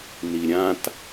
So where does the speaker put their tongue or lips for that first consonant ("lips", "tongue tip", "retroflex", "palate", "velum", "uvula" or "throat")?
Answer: tongue tip